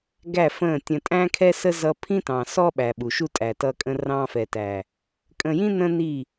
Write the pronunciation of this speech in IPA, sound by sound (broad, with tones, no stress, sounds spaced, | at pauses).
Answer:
ɡ æ˦˨ f ə̃˦˨ tʲ ə̃˨ tʼ æ̃˦ kʰ ɛ˦ s ə˦ z ʌ˦ pʰ ĩ˦ t ɑ̃˨ s ɔ˦ ɓ æ˨ ɓ u˨ ʃ u˦ tʼ æ˨ t ʌ˦ kʼ ə̃˦ r ɑ̃˦ f ɛ˨ t æ˨ | kʼ ə̃˨ j ĩ˦ n ə̃˦ n i˦˨